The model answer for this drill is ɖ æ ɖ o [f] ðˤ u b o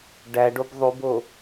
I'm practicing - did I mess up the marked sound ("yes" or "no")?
yes